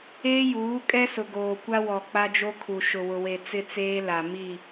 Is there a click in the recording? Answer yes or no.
no